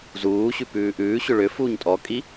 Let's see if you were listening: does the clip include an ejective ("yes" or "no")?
yes